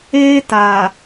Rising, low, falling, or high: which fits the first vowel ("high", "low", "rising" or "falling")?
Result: high